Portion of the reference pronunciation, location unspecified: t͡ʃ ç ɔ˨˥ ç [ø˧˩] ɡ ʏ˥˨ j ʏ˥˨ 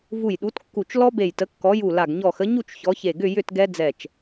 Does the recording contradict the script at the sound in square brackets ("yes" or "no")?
yes